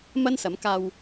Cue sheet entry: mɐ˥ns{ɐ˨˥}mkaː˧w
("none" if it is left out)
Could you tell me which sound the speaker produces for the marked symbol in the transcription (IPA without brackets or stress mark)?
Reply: ɐ˨˥